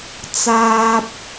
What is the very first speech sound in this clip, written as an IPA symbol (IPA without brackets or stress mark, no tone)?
t͡s